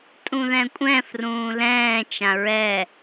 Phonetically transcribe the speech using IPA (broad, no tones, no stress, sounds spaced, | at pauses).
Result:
tʼ ũ ð ɛ̃ kʷʼ ɛ̃ f r ũː l ɛ̃ː t͡ʃ ã ɹ ɛ